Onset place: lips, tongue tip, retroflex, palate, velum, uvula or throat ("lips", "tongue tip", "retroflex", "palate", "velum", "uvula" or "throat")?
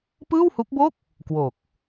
lips